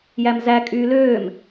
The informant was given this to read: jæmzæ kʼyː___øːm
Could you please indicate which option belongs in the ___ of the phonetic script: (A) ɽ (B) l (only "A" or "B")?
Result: B